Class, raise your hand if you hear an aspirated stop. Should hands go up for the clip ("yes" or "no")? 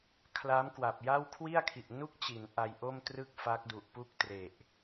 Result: yes